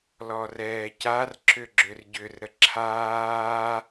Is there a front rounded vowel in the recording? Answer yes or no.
yes